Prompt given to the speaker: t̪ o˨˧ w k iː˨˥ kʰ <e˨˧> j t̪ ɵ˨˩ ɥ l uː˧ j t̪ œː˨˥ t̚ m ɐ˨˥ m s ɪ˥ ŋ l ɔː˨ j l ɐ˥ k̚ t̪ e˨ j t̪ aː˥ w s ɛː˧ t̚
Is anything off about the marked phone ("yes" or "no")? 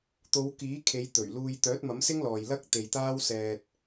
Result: no